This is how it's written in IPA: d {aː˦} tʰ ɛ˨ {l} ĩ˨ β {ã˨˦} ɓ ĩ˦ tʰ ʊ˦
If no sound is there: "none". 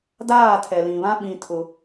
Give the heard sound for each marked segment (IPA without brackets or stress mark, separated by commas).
aː˦˨, l, ã˦